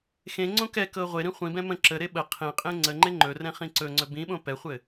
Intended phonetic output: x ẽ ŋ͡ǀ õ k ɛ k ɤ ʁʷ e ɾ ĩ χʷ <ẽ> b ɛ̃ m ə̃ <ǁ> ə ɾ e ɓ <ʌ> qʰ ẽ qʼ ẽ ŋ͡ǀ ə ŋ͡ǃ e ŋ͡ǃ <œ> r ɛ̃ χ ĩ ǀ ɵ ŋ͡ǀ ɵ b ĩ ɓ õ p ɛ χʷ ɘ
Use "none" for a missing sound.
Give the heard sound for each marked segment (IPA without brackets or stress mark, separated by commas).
ĩ, ǁ, ə, ɵ